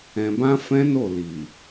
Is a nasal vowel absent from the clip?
no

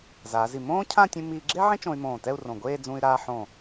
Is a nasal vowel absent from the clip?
no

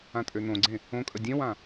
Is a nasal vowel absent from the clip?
no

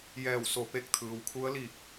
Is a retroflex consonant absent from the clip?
yes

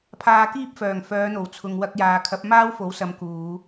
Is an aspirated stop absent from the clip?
no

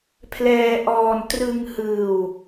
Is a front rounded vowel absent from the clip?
yes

